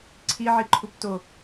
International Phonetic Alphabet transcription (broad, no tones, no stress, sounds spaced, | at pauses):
ǀʰ i ʕ i ǃʰ u p t o